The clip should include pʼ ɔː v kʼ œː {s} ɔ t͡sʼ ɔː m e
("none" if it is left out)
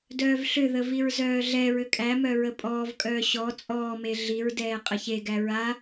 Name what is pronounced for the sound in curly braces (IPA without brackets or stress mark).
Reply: ɕ